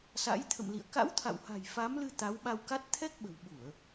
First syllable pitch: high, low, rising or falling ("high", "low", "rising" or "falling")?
rising